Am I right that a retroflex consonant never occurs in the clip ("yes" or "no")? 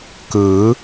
yes